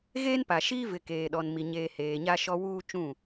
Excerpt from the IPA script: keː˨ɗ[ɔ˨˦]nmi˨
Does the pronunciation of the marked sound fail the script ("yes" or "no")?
yes